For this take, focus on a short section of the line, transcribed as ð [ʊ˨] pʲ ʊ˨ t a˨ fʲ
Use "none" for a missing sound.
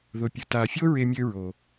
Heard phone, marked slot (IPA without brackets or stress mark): ʊ˨